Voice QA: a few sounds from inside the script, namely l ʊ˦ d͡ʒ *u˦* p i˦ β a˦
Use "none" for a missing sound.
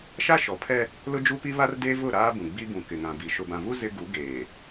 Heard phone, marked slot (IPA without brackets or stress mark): u˦